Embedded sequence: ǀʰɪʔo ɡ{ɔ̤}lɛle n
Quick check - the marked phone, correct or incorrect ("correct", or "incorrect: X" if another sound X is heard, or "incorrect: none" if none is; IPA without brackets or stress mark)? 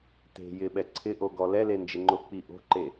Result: incorrect: ɔ